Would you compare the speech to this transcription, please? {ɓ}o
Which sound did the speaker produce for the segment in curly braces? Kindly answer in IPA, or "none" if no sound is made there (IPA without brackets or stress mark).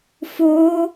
f